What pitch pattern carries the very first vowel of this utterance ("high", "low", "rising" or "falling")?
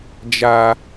high